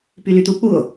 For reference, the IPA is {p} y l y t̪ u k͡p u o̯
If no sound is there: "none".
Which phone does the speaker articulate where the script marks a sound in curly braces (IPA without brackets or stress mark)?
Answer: p